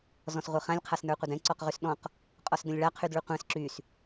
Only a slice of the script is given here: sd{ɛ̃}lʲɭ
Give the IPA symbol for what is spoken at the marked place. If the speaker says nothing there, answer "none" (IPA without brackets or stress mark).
ə̃